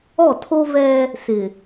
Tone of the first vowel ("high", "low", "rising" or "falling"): falling